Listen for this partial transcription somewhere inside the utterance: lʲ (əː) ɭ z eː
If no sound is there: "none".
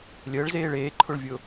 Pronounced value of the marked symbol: əː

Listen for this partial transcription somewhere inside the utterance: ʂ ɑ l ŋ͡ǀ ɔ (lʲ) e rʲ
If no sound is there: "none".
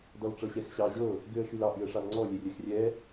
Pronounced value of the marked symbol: lʲ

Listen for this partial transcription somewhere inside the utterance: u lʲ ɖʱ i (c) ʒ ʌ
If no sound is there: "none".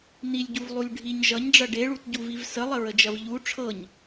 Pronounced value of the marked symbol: ɲ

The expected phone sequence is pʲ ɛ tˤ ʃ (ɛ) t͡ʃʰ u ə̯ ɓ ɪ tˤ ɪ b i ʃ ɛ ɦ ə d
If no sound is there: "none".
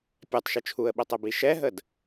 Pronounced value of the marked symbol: ɪ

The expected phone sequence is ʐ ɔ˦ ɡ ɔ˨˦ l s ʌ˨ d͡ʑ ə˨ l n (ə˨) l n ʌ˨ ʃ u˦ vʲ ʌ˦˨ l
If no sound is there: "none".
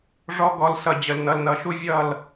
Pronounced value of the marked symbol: ʌ˨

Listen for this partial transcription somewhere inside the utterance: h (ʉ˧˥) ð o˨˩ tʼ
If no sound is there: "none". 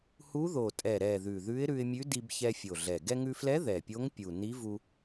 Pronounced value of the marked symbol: u˧˥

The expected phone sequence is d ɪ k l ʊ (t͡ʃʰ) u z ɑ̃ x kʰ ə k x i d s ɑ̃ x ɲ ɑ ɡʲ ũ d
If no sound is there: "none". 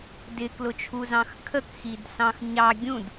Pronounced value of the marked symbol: t͡ʃʰ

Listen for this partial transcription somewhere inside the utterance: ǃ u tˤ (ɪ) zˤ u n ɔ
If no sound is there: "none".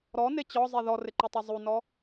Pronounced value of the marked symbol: i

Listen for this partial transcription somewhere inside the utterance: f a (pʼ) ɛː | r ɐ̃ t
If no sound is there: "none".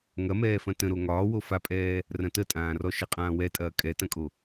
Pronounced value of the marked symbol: pʼ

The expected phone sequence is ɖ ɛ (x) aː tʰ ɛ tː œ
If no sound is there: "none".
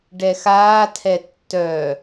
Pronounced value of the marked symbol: x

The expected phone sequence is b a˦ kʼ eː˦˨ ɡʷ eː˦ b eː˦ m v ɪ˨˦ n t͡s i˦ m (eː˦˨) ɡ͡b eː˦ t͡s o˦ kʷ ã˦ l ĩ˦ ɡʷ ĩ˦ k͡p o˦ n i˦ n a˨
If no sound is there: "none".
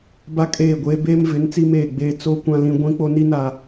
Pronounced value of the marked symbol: eː˦˨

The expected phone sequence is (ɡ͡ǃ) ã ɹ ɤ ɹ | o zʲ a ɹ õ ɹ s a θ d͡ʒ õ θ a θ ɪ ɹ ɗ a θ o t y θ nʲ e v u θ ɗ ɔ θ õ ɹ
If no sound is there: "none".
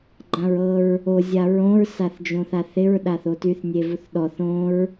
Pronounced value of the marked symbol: ɡ͡ǃ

